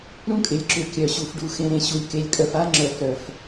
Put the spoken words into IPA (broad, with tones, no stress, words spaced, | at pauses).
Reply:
ɾũ˦kʼɪ˨lʲǁʏ˨ kʲœ˨ɕu˨fɖu˨ xẽ˨ɾẽ˨ ɕu˨lʲke˨lʲkʼœ˨f a˦ŋ͡ǁœ˨f ɾœ˨f